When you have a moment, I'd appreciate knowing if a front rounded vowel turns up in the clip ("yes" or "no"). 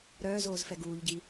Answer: yes